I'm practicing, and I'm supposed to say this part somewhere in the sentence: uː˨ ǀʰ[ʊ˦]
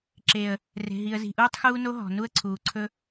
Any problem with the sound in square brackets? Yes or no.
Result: yes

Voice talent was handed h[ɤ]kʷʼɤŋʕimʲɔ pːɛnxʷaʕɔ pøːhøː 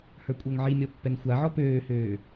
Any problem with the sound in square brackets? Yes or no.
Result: yes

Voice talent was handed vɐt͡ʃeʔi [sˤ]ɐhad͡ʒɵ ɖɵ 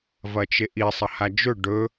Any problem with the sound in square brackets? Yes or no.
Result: no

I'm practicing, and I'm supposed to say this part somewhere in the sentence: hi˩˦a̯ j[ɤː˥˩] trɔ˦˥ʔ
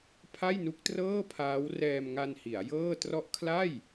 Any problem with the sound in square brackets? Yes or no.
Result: no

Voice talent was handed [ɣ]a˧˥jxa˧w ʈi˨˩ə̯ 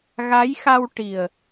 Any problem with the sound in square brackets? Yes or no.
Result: no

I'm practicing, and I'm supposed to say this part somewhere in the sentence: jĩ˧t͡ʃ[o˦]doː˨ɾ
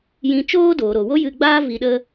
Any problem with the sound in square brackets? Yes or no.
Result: yes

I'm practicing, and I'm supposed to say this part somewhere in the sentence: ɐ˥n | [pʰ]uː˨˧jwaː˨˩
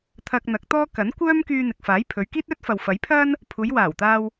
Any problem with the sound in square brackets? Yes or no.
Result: no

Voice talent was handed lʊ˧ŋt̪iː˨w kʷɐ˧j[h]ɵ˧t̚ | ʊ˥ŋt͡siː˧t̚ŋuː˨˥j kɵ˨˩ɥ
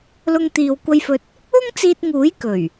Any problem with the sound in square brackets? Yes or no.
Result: yes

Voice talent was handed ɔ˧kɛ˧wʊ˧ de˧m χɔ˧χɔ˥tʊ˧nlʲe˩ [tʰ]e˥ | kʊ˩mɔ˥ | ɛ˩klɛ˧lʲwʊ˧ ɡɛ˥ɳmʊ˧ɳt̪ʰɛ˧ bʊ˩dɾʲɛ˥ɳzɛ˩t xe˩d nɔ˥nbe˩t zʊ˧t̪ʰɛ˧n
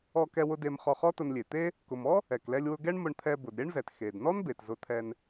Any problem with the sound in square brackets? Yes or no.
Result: yes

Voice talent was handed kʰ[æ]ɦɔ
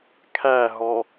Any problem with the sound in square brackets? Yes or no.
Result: no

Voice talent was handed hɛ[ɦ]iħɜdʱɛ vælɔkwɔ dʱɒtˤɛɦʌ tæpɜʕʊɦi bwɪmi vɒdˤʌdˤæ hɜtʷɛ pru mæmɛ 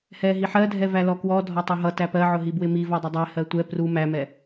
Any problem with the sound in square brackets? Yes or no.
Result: no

